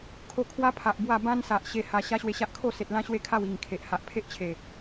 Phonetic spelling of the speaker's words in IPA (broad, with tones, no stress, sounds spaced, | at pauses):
kʰ o˥˧ kʰ w a˦ pʰ a˨ ʔ b w a˥˧ b ã˦ n s a˨ ʔ ɕ e˧ h a˧ ɕ a˦ ɕ w e˧ ɕ a˦ ʔ kʰ o˥˧ s e˨ t̚ l ã˦ ɕ w e˦ kʰ a˥˧ w i˨˩ ŋ kʰ e˨ ʔ h a˨ ʔ pʰ e˦ ʔ t͡ɕʰ e˨˩